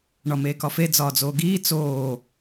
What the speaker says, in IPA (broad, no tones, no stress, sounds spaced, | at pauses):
ɳ ɒ m eː k ɒ f e d͡z ɒː d͡z oː ɡ iː t͡s oː